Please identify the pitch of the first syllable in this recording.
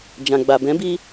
low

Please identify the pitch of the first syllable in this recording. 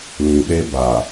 low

